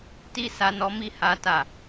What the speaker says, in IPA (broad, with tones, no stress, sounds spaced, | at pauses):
t i˦ s a˧ n ɔ˧ m i˦ h a˦ t a˦˨